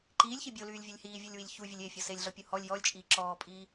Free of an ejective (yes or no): no